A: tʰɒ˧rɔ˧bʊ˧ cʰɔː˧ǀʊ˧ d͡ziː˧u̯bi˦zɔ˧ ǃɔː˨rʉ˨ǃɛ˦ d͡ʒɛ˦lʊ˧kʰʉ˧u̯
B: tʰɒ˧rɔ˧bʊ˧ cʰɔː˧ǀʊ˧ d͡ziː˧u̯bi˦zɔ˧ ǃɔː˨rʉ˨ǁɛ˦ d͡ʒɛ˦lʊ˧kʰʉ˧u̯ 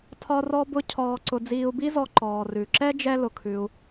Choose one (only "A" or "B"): B